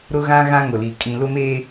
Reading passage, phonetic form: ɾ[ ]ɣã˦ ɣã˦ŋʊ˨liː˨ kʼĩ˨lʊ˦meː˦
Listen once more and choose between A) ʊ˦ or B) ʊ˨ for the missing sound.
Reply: A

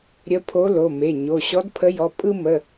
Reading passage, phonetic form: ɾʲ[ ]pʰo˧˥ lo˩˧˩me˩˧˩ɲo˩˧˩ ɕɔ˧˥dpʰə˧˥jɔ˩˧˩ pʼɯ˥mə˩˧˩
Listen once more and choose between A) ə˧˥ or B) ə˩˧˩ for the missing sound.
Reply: A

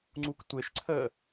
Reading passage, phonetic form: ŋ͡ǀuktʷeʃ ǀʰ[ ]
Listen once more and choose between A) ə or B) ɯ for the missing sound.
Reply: A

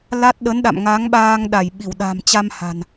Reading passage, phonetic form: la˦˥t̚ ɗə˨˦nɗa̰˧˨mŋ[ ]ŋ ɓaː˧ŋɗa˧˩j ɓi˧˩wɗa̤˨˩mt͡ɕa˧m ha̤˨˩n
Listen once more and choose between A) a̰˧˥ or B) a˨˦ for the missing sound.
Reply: B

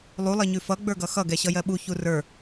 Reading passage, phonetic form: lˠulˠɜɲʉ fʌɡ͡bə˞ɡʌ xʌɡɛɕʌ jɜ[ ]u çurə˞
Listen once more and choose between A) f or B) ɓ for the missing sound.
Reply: B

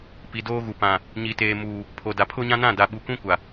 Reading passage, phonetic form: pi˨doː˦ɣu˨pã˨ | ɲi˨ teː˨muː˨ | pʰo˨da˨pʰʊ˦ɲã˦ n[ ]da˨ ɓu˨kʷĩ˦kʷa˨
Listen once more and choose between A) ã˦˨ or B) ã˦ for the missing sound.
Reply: A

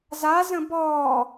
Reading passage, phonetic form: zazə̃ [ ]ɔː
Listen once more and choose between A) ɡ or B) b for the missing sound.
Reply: B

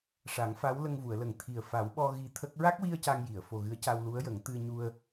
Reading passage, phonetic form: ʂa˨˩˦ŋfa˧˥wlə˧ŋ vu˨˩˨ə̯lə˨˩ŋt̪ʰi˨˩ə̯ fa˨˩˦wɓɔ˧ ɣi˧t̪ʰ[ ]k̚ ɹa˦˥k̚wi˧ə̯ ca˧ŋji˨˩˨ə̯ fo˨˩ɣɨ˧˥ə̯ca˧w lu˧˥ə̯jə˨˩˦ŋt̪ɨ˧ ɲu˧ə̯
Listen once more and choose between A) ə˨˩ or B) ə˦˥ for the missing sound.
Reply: B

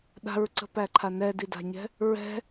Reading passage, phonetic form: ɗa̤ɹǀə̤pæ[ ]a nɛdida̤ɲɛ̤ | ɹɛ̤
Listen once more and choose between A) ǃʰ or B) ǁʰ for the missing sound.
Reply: A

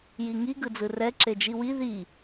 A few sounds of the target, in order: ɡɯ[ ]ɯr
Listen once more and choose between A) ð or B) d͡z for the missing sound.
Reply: B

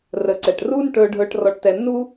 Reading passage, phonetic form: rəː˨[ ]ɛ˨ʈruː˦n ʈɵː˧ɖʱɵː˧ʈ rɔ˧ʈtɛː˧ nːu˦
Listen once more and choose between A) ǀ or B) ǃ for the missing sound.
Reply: A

